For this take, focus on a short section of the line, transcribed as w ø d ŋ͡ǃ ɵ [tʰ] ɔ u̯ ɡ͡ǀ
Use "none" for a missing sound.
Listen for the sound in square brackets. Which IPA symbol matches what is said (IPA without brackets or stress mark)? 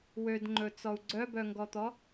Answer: t͡s